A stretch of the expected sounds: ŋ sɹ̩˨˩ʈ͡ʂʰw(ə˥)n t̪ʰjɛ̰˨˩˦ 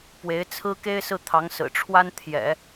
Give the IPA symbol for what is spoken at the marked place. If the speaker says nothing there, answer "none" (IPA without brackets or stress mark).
a˥